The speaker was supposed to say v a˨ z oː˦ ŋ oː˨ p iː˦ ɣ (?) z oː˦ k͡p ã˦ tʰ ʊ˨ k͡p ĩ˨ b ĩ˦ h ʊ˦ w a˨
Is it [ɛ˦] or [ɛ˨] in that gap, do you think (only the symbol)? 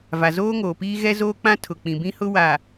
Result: ɛ˦